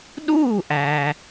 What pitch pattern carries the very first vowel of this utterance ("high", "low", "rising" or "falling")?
falling